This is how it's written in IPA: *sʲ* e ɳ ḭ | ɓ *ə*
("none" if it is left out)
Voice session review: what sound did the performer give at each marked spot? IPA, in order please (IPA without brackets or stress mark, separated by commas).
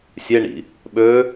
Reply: sʲ, ø